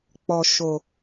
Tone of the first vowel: low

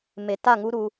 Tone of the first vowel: low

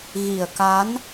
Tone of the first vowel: low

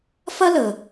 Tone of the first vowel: high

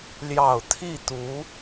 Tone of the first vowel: low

